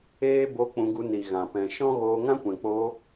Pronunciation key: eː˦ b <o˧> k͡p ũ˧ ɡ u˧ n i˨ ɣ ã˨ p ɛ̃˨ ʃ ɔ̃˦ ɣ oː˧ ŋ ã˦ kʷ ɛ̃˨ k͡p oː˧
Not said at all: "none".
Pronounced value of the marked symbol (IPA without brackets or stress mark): o˧